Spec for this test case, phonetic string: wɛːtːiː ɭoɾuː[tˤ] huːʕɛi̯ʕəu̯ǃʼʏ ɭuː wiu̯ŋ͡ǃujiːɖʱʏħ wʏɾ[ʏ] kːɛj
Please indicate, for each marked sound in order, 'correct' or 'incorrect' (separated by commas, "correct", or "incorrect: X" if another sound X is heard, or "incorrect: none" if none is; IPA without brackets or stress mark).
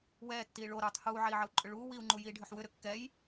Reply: correct, correct